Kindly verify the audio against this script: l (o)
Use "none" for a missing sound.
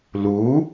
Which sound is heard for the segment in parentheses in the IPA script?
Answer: u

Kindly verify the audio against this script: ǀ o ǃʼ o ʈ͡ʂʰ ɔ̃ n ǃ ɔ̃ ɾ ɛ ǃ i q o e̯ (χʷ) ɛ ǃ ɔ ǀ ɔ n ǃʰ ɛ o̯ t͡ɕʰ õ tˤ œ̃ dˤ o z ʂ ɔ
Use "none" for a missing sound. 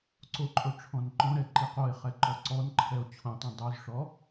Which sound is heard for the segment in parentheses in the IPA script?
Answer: χ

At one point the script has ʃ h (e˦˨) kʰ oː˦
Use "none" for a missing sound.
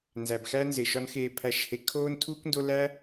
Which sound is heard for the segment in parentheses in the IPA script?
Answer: e˧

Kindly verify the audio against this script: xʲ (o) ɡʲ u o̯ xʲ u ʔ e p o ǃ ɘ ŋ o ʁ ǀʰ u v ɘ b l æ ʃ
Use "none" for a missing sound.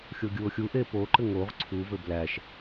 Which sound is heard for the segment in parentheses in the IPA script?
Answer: o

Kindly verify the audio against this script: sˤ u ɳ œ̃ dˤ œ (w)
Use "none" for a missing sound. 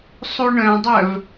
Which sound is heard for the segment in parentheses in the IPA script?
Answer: v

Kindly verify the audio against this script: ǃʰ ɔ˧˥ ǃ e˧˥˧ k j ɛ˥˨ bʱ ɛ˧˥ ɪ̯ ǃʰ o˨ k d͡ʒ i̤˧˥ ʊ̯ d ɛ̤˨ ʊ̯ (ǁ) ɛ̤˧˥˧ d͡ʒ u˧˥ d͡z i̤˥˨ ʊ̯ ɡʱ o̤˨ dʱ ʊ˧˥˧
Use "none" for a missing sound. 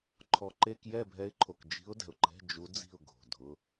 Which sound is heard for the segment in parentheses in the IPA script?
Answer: ǃ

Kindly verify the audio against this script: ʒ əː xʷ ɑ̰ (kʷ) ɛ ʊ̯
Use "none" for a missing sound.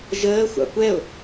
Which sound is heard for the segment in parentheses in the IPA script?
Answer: kʷ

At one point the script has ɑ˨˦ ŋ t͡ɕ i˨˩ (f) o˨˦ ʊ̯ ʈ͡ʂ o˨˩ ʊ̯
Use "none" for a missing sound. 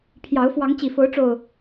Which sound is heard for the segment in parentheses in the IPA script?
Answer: f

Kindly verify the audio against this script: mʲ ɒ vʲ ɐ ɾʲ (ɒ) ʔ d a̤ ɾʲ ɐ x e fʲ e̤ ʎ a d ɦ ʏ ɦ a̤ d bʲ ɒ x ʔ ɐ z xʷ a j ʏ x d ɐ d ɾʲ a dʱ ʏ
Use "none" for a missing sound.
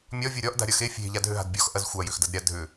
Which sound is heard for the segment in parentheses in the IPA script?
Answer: ɒ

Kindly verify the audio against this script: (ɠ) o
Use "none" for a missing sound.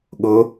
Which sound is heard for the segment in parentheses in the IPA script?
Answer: ɠ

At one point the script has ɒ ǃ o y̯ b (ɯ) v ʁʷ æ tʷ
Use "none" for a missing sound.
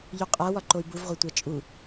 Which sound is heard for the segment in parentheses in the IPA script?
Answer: u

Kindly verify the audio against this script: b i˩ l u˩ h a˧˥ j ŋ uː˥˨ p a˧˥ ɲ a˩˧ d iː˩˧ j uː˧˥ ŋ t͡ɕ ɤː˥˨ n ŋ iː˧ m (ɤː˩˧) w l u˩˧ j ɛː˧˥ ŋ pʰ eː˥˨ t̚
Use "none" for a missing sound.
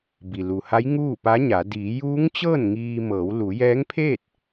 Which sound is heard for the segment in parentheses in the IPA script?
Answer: ɤː˩˧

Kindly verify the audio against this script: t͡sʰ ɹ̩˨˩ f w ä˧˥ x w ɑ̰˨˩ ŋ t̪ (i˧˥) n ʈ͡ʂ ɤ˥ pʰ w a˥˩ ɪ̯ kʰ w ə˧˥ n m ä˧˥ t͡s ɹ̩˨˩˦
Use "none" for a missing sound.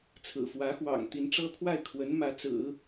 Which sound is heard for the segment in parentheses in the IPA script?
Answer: i˧˥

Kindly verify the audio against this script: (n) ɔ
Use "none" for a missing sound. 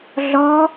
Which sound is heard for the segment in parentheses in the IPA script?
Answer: ɮ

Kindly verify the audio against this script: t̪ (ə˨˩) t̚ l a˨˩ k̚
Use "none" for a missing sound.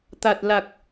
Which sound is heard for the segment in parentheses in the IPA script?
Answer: a˨˩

